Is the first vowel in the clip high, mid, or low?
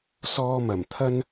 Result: mid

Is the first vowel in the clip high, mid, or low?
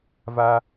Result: low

